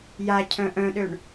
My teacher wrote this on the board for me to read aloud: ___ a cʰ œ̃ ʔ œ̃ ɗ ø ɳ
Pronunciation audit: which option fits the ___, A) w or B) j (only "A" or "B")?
B